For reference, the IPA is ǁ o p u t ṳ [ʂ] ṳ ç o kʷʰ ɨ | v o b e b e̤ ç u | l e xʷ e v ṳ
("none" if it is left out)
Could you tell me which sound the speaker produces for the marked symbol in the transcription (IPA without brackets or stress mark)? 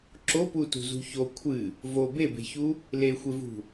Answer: z